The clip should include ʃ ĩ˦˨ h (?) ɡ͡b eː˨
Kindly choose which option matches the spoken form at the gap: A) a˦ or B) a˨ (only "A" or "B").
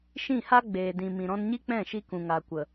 A